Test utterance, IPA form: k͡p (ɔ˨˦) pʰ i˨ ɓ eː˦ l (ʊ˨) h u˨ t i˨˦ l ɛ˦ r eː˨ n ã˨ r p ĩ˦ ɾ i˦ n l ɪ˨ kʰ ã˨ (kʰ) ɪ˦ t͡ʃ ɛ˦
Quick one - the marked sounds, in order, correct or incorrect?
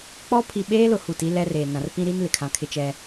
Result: incorrect: ɔ˦, correct, correct

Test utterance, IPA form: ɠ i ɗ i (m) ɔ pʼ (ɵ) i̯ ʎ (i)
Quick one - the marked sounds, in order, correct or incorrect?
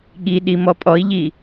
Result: correct, incorrect: ɔ, correct

